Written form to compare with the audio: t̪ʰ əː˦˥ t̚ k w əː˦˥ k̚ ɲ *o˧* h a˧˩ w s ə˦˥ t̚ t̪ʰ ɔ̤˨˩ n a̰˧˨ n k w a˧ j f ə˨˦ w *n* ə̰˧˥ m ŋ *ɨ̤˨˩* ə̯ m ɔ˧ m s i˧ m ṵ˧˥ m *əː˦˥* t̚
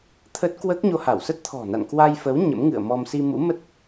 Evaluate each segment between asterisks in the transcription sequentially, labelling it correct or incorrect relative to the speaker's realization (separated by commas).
correct, incorrect, incorrect, incorrect